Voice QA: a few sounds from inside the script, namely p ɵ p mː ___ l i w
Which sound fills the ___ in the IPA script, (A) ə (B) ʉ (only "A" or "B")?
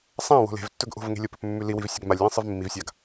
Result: B